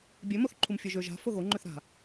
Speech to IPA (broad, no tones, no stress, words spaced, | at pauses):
bʲø moθǃʰumfʲøʒø ʒa̤ foɣoŋ͡ǃøθ ɾa̤